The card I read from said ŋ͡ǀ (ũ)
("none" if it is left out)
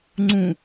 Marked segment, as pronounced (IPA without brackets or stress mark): ũ